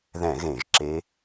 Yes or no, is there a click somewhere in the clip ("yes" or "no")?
yes